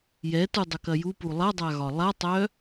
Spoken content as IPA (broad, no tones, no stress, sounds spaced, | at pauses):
j ɛ t u dˤ œ k ɐ j u p u lˠ ɐ dˤ a ɣ ɒ lˠ a tˤ œ